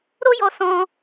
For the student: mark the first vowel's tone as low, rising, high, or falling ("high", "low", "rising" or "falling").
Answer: high